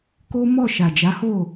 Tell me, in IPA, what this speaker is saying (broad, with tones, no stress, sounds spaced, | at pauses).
k o˦ m ɔ˦˨ ʃ a˨ d͡ʒ a˨˦ h o˦˨